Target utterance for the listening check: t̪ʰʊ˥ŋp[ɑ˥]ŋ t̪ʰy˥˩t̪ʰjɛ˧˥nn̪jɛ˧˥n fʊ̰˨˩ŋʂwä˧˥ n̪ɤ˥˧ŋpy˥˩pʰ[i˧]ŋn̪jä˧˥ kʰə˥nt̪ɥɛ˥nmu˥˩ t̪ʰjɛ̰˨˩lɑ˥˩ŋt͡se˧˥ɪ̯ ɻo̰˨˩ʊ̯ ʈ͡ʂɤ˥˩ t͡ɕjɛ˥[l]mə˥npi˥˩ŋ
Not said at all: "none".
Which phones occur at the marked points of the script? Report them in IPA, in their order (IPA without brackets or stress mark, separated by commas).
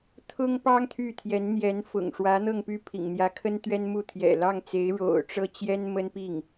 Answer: ɑ˥, ḭ˨˩, n